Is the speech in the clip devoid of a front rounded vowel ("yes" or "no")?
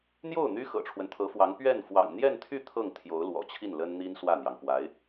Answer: no